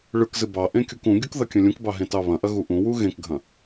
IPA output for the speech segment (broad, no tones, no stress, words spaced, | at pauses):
ɭɯkzɨ bɑʔẽ kʲukũɡʲuk ðɐkʲɐ̃lʲũkbɑ ɦẽtɑβɐ̃ʔɐ ɣuʔũwu ɣẽkɡʱɐ̃